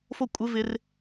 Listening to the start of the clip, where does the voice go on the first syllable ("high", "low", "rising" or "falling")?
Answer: falling